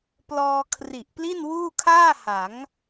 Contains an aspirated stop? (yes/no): yes